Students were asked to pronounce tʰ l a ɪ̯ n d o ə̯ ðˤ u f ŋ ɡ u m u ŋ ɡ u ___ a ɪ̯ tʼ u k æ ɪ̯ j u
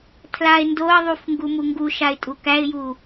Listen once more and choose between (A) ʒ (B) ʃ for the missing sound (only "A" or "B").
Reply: B